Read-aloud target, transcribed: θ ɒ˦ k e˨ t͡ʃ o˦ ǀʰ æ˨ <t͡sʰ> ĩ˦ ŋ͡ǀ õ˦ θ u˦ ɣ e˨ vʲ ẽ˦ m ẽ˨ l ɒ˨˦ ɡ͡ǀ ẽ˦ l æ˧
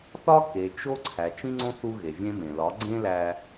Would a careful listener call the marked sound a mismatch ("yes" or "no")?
yes